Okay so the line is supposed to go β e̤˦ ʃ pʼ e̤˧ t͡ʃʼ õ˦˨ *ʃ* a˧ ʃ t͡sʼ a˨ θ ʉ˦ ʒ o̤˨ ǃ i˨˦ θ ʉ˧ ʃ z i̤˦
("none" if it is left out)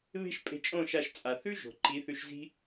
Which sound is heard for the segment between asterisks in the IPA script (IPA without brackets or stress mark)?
ʃ